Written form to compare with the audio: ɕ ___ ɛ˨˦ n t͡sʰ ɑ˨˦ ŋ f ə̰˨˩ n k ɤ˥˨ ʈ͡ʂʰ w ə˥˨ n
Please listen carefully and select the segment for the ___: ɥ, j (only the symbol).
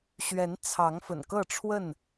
ɥ